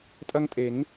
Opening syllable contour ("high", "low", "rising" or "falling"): high